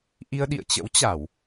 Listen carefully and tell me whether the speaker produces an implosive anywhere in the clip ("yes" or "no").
yes